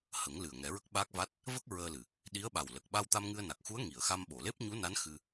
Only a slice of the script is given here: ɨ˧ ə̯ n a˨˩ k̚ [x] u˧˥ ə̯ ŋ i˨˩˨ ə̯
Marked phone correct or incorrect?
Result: correct